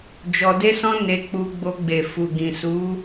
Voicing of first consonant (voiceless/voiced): voiced